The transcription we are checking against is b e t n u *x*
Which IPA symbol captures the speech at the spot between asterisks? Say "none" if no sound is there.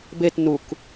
k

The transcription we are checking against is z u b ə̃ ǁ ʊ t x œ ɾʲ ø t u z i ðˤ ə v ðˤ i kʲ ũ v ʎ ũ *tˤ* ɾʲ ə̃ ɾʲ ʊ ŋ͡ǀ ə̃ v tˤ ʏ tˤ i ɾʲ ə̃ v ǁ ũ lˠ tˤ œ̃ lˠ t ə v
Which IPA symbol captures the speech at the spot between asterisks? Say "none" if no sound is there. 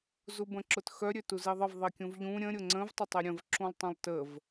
none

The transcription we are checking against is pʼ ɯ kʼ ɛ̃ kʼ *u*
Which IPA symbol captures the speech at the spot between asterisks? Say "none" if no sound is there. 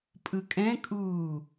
uː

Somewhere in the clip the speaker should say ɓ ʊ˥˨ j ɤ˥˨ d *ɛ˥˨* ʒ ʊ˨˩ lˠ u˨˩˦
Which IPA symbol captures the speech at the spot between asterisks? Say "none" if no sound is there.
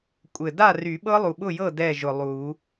ɛ˥˨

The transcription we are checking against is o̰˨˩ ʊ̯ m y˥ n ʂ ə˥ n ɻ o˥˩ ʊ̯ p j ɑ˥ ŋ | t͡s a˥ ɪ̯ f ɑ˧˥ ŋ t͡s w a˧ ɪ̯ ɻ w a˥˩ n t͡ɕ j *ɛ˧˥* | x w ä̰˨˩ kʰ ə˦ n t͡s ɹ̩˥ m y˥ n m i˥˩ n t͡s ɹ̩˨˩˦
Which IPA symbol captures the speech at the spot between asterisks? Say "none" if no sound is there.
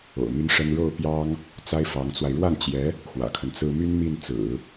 ɛ˧˥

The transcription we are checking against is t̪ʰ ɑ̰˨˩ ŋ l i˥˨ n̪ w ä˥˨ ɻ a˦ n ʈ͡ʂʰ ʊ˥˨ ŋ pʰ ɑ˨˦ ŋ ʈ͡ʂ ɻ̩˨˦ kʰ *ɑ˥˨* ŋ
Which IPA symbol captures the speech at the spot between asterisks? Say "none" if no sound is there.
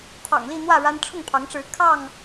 ɑ˥˨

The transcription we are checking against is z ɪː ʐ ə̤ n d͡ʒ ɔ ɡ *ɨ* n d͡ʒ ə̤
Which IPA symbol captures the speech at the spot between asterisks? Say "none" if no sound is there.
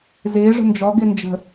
ɪ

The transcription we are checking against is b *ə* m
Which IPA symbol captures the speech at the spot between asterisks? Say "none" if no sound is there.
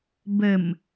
ə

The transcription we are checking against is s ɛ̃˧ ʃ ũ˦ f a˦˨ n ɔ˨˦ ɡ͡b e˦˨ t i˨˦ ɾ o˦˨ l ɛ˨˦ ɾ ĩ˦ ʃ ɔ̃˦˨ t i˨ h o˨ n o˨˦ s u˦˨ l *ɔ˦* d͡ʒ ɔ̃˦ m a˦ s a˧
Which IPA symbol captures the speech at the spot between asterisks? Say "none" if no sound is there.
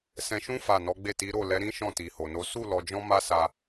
ɔ˧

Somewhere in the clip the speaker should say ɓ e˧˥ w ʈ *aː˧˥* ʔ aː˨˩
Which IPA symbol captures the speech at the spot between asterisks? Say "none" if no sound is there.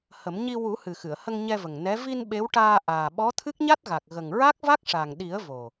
aː˧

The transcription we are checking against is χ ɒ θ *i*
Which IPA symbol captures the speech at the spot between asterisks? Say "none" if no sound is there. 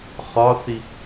i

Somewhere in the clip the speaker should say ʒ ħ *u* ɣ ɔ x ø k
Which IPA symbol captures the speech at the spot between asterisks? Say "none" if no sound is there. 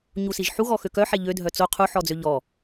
u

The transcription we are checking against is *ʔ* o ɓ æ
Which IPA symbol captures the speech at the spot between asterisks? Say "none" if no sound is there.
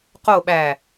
q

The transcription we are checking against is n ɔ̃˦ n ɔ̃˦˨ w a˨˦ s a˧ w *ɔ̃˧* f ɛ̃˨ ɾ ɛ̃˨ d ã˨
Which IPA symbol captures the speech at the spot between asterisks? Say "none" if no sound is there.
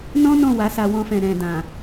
ɔ̃˧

